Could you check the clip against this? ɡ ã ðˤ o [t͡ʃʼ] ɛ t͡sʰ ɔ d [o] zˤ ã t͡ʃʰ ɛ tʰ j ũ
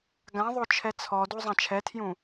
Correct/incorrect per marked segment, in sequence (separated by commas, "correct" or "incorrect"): incorrect, incorrect